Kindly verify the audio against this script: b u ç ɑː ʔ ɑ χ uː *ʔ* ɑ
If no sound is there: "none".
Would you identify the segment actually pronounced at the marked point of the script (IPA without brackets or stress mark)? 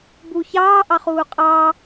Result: qʼ